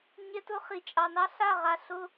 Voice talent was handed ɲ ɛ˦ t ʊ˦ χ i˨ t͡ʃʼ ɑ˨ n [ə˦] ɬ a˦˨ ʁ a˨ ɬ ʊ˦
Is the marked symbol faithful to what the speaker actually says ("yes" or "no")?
no